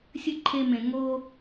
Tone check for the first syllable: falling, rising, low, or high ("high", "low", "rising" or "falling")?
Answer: falling